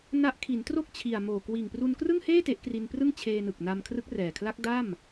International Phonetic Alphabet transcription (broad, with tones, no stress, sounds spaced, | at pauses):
n a˦˥ ʔ kʰ i˩˦ n t r o˥˩ k̚ t͡ɕʰ i˨˩ a̯ m oː˨˩ k w iː˨˩ ŋ p r u˧ n k r ɯ˥˩ ŋ h eː˥˩ t e˦˥ ʔ k r i˧ n p r ɯ˥˩ ŋ t͡ɕʰ eː˧ n ɯ˨˩ k̚ n a˧ m kʰ r ɯ˦˥ k̚ r ɛː˨˩ kʰ l a˦˥ k̚ d a˥˩ m